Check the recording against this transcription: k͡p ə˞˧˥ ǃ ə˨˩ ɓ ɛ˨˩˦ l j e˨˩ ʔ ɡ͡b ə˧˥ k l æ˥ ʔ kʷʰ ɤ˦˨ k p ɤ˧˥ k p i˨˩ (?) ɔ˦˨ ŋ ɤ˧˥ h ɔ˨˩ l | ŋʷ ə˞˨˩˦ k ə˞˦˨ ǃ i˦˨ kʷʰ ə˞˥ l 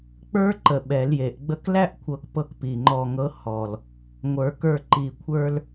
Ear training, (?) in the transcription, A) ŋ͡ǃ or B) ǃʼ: A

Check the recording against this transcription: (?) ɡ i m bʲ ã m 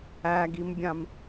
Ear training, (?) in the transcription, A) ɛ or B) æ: B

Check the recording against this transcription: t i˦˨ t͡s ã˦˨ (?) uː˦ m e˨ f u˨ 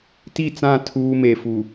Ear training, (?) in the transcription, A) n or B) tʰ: B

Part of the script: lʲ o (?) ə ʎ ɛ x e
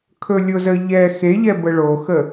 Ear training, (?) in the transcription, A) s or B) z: B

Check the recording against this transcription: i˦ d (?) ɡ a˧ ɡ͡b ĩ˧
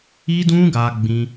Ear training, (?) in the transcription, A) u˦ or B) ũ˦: B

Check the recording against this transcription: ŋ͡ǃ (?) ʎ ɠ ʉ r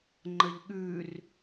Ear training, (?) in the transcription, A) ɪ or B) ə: B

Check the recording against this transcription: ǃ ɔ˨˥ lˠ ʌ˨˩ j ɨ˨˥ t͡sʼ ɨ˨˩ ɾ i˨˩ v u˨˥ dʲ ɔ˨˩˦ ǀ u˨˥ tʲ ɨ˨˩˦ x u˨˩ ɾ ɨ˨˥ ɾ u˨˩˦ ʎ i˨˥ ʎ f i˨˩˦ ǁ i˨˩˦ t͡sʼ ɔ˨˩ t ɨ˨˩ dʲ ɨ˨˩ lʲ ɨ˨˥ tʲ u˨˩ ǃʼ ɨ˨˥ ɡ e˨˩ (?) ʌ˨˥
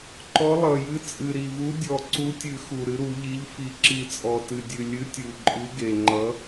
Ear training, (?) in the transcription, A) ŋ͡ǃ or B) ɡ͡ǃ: A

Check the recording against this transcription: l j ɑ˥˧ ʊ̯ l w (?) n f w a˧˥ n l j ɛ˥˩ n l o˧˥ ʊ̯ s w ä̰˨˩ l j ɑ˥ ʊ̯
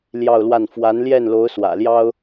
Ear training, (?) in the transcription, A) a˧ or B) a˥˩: B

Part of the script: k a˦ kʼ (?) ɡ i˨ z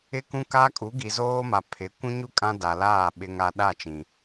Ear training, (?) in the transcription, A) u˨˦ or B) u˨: A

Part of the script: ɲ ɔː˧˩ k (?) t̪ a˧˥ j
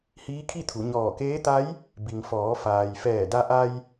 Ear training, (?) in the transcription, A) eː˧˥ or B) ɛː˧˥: A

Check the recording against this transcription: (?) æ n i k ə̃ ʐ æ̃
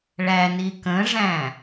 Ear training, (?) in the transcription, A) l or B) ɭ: B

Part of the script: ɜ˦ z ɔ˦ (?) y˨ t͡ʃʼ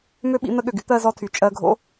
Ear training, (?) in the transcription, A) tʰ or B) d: A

